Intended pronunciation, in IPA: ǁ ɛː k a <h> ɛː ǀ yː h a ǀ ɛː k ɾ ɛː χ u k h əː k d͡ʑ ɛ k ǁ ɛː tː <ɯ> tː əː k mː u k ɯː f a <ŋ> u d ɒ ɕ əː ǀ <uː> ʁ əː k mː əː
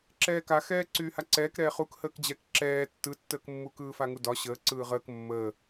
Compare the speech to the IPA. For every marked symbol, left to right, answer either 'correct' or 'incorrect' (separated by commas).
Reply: incorrect, correct, correct, incorrect